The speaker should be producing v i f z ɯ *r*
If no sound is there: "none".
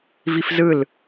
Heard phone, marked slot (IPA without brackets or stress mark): l